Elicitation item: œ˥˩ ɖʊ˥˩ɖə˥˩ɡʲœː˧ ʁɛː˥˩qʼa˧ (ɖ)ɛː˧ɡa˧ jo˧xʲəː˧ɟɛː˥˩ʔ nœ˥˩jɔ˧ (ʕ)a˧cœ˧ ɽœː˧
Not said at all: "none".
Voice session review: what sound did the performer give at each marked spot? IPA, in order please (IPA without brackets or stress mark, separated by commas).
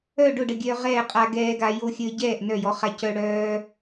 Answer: ɡ, χ